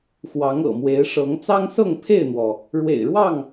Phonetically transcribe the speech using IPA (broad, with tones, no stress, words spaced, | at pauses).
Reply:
xwɑ˨˦ŋɤ̰˨˩mwe˨˦ɪ̯ʂɤ˨˦ŋ t͡sɑ˦ŋsɤ˥˨ŋpʰe˥˨ɪ̯n̪wɔ˩ | ɻwḛ˨˩ɪ̯ɻwɑ˥˨ŋ